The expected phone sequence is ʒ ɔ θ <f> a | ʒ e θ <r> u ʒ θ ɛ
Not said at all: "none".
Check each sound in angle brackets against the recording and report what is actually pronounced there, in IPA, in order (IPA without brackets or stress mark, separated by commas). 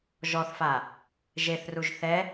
f, r